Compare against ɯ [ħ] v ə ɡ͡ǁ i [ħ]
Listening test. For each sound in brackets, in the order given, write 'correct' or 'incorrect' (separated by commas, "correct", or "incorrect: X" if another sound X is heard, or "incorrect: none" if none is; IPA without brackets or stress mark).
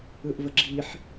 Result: incorrect: ʔ, correct